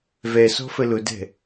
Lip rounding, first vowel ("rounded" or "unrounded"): unrounded